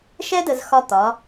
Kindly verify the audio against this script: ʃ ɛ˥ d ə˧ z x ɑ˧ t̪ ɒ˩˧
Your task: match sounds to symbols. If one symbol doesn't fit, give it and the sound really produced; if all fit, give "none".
ɑ˧ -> ɒ˧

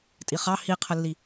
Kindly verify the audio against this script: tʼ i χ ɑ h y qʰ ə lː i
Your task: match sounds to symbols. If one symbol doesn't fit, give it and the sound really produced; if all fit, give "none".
y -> i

